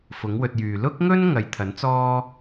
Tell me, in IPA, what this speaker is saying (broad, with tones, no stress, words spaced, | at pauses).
fʊ˨˥ŋwɵ˧t̚jyː˨ lʊ˥k̚ŋɵ˥n ŋɐ˨jt̪ʰɐ˨˥nt͡sɔː˥